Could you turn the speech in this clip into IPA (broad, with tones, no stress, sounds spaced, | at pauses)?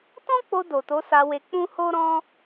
t ɔ̃˦ k͡p o˧ d o˨ t o˨˦ s a˧ w e˧ k͡p ũ˦ h o˦ ɾ ɔ̃˦